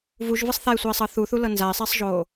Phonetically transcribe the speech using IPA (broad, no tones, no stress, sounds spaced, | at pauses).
v u ʒ v ɯ sˤ θ a ɪ̯ sʷ iː sˤ ɤ θ u θ u l ɤ n z a ɪ̯ sˤ iː sˤ ʒ oː